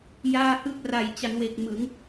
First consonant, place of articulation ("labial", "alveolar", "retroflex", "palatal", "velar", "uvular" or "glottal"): palatal